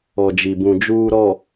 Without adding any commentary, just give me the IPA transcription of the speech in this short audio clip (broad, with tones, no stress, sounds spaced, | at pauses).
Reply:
ɔ˨ d͡ʒ i˨ b ũ˨ d͡ʒ uː˨ ɾ ɔ˨